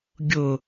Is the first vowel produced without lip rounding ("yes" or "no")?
no